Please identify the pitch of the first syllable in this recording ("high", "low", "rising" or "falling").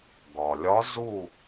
low